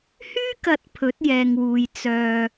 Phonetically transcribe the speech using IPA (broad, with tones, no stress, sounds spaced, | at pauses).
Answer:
h yː˥ k ɐ˨ t̚ pʰ ɵ˨˥ t̚ j ɛː˨ ŋ w uː˨ j t͡s œː˧